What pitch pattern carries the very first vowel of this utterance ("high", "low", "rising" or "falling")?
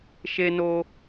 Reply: high